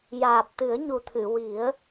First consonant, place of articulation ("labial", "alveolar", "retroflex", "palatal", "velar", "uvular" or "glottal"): palatal